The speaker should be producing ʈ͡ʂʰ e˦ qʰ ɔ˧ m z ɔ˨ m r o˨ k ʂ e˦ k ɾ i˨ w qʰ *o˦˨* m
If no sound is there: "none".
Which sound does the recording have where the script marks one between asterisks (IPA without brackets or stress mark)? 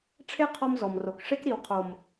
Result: o˨